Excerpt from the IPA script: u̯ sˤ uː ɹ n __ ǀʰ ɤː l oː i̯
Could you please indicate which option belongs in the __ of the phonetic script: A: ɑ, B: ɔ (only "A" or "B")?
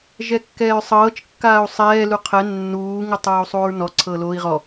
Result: B